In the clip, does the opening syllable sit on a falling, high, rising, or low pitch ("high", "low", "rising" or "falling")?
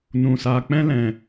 low